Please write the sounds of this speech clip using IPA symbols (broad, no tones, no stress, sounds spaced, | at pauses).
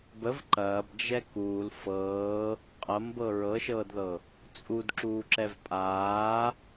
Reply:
b ə v ǃ ɐː b d͡ʒ ɛ k uː l f ɤː | qʼ ɐ m b ɤ ɹ ɤ ʃ ɤː d ð ɤ | t͡sʼ u d ǁ uː ǁ ɛ v pʼ aː